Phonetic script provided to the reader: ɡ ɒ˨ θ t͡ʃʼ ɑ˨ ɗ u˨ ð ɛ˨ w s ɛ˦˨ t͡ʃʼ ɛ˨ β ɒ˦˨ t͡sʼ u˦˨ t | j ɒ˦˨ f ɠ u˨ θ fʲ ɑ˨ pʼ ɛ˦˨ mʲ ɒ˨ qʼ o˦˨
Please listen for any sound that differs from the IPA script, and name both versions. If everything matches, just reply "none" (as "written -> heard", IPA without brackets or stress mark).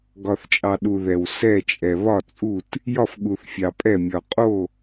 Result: none